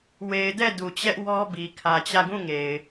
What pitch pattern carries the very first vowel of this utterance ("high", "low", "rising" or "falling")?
low